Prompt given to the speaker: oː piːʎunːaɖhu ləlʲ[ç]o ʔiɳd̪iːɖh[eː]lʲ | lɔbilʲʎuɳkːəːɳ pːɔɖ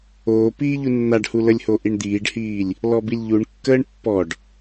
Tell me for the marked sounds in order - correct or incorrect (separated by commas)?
incorrect, incorrect